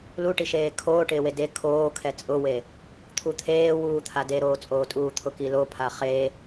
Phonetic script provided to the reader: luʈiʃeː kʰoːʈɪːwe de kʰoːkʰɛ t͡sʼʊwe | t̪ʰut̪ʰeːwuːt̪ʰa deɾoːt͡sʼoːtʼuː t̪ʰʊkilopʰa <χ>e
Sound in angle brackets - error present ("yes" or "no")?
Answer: no